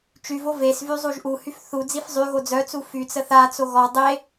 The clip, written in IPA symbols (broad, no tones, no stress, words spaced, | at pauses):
t͡ʃyvo ves vyzˤuʒʔuhyf θu d͡zifzˤyɣo d͡zœt͡su fyt͡sə θat͡so ɣɔ dˤe